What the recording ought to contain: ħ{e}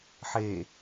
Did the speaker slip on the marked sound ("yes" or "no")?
no